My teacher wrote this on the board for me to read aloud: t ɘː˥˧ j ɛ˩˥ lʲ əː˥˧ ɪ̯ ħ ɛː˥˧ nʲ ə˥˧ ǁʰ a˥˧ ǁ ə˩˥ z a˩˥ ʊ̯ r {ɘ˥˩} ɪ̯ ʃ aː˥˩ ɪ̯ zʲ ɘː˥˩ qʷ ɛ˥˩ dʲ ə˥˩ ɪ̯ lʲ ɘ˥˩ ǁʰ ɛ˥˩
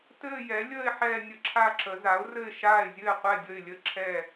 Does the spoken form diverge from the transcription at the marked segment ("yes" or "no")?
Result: no